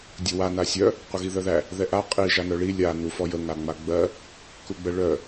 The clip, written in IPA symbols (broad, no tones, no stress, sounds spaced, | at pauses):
dʲ ə w a n a sʲ œ | qʷ ə ɣ i ð œ ð æ | ð ɛ ʔ a qʼ i ʒ a n œ ɭ i lʲ a n u f ɔ j ə ŋ a ŋ͡m a ɡ͡b ɜ | k u ɡ͡b ə ɭ œ